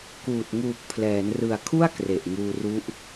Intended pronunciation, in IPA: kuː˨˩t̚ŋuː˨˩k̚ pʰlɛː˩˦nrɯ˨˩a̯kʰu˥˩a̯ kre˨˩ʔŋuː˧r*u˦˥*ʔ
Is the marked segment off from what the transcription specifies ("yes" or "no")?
no